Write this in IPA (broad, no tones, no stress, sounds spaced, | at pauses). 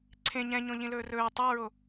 ǀʰ ẽ ɲ ɛ̃ ɲ õ ʎ ĩ l ɵː r ɵː tˤ a ɹ o